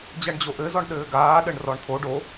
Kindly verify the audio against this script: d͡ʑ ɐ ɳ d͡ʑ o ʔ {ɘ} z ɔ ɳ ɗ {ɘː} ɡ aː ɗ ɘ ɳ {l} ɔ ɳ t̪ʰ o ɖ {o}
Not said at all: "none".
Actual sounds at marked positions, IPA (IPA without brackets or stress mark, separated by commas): ɘ, ɘː, r, o